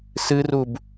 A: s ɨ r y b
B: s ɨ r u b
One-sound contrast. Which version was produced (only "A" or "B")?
B